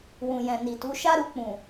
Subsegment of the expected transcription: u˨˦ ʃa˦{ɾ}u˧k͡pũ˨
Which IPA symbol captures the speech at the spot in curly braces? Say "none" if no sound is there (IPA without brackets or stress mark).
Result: ɾ